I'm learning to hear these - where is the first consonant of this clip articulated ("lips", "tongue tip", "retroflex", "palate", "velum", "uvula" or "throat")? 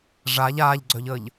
retroflex